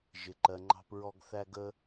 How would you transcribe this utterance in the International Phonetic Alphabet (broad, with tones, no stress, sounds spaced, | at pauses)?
ʒ ɪ˨ ǃ ɜ˨ ŋ͡ǃ ɑ̤˧ p ɹ ɔ˧ ɡ θ æ˧ ɡ ə˧